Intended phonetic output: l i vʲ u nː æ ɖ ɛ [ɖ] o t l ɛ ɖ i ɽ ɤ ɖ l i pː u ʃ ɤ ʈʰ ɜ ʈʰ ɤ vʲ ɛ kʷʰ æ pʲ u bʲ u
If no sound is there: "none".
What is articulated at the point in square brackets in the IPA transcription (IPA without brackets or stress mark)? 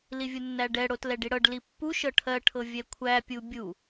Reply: ɽ